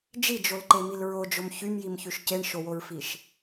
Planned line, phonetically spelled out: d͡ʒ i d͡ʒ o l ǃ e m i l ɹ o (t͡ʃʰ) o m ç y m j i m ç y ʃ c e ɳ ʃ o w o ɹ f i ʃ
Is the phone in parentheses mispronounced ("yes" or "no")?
yes